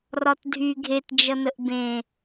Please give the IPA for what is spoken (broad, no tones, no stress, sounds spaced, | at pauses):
r ɒ t dʱ y ɡʱ e t d͡ʒ ʌ n ə ʔ b ẽ